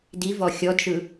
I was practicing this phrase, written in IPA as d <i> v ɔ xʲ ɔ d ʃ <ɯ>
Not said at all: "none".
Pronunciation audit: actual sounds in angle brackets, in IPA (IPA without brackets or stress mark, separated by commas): i, ɯ